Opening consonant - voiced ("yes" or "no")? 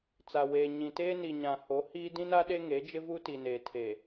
no